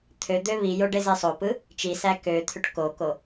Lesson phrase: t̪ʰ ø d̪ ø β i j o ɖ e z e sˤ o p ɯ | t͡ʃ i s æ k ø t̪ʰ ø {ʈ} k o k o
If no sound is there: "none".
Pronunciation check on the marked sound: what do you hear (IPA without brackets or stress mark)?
ʈ